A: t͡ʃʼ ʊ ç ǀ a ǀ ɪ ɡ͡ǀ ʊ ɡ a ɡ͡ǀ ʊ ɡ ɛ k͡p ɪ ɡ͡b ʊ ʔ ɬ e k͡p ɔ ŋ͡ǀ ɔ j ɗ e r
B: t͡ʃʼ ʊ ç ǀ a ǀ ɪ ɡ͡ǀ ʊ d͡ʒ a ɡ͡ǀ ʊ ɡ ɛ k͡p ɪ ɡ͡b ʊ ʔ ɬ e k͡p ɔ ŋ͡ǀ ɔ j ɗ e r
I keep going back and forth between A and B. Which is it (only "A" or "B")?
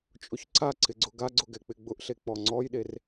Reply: A